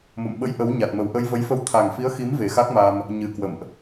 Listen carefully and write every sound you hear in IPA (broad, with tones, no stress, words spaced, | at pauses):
mo̰˧˨mɓə̰˧˥j ʔə˨˦wɲa˨˩t̚mə˨˩w ʔə˧jvə˨˦jfə˧w t̪ʰa˨˩ŋfi˨˦ə̯xi˨˦m ve˨˩xa˦˥k̚ma˧m | ɲɨ˨˩ kwə̰˧˨mʔ